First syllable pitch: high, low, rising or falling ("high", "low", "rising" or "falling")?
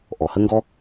low